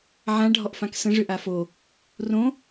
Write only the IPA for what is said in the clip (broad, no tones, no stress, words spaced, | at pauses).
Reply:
ʕã ɖʱɔʔfãksə̃ ʐʏʔafo | rõ